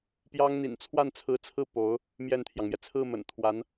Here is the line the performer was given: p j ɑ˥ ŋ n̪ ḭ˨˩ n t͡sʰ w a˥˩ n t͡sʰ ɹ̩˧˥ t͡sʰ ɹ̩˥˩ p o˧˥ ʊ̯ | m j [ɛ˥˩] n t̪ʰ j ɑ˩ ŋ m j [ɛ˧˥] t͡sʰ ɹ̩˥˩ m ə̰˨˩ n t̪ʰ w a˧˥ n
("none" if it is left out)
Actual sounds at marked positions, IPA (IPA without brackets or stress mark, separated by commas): ɛ˥˩, ɛ˩